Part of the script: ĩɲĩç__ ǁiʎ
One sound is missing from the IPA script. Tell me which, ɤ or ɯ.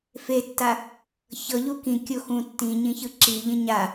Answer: ɯ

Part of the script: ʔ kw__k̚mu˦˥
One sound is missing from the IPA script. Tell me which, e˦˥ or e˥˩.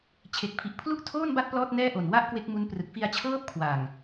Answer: e˦˥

